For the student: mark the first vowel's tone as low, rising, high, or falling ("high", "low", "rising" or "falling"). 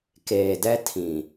low